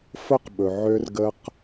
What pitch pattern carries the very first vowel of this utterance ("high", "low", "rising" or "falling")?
high